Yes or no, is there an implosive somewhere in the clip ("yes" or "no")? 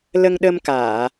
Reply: yes